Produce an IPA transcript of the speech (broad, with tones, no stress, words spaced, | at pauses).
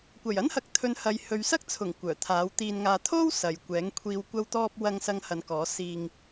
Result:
kʷɐ˨˩jɐ˥nhɐ˨k̚t̪ʰɵ˨˧n hɐ˨jhɵ˨˧ɥsɐ˥k̚t͡sʰʊ˨˩ŋ kʷœː˨˩t̪ʰaː˨˥wt̪iː˧nŋaː˧ t̪ʰo˥w sɐ˨˧jkʷɛː˨˥ŋ kʷʰiː˨wkʷɐ˧wt̪ɔː˧p̚ wɐ˧ŋsɐ˧ŋhɐ˨˧nkɔː˨˥ siː˧ŋ